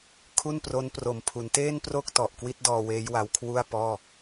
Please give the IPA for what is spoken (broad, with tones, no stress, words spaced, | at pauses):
kʰu˥˩npro˦˥npro˨˩mpʰu˩˦n teː˥˩npro˥˩k̚ tɔ˨˩ʔkwi˦˥t̚dɔː˧ weː˦˥jwa˧wkʰwu˥˩a̯ pɔː˥˩